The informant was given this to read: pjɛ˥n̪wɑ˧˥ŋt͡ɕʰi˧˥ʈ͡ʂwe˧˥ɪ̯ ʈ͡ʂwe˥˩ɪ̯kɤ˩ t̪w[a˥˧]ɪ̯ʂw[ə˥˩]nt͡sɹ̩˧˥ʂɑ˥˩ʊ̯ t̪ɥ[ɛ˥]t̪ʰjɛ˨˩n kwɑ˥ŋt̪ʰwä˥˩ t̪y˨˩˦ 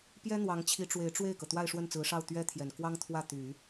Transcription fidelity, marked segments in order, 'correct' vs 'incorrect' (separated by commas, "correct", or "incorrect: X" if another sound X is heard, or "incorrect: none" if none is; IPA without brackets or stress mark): correct, correct, correct